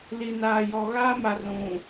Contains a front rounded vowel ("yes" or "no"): no